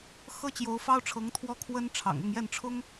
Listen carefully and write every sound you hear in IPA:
x ɤ˥ t͡ɕ j o˧˥ ʊ̯ f ɑ˥ ʊ̯ ʈ͡ʂʰ ɤ˧˥ ŋ t̪ʰ w ɔ˥ kʰ w ə˥ n ʈ͡ʂʰ ɑ̰˨˩ ŋ ʊ˥˧ ŋ j ɛ˥˩ n ʈ͡ʂʰ ʊ˥ ŋ

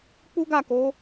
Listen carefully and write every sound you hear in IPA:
k͡p u˦ ɡ a˦˨ k o˨˦

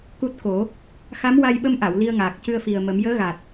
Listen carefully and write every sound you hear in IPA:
k u˦˥ t̚ k o˨˩˦ | x a˧˥ m w a˧ j ɓ ə˧ m ʔ a˨˩˨ w l i˧ ə̯ ŋ aː˨˩ k̚ c ɨ˧ ə̯ f i˨˩ ə̯ m ə˨˩˦ m j əː˧˥ ɣ a˨˩ t̚

